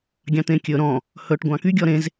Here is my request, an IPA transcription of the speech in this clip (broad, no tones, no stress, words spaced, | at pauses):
ɡʲɑ̃t̪ẽkʲɵ ɾɔ̃ | hɵʈ ɡʷɑ̃ky ɡʲɔɾẽz